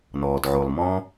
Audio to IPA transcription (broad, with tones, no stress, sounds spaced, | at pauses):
n ɔː˩ d ʕ o˩ lˠ m ɔ̃ː˧